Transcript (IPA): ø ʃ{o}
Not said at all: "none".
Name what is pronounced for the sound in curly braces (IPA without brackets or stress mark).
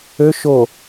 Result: o